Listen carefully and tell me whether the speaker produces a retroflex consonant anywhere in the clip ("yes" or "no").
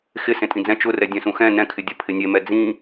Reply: no